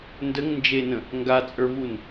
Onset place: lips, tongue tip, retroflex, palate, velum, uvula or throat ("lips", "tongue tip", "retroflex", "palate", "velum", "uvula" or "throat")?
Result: tongue tip